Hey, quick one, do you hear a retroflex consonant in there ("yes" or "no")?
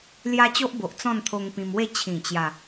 no